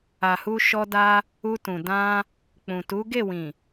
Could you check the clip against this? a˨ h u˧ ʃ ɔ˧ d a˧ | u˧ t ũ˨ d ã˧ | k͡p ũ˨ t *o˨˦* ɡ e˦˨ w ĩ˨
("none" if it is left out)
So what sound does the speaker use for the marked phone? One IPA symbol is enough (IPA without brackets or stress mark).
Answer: u˨˦